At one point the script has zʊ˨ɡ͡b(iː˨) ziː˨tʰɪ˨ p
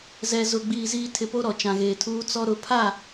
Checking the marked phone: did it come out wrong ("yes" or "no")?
no